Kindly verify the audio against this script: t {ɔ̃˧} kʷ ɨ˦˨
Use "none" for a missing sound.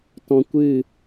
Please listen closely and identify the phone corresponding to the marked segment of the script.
ɔ̃˧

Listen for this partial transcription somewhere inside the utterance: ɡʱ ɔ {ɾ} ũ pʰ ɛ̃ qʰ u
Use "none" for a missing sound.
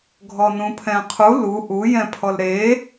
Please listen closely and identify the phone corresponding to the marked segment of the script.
n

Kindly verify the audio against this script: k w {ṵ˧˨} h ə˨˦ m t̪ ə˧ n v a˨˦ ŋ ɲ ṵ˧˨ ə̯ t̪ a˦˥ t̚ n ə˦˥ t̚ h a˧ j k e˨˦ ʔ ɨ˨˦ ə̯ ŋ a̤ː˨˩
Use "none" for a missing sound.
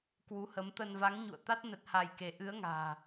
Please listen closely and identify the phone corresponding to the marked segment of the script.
u˨˦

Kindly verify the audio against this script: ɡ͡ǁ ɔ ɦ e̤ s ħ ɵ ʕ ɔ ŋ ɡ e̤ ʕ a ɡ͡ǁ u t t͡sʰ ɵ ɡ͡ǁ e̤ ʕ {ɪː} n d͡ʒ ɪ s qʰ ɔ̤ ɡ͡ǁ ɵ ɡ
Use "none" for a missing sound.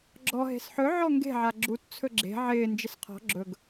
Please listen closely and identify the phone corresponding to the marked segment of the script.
ɪː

